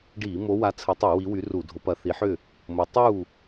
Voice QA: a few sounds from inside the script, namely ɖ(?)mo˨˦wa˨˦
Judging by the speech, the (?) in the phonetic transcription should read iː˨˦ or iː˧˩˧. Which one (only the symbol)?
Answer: iː˧˩˧